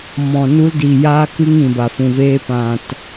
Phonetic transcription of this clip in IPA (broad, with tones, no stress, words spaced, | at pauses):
mɔ̃˨nu˧ldi˨ jaː˧kɨ˧ŋĩ˨ba˨ fũ˨veː˧ pã˨t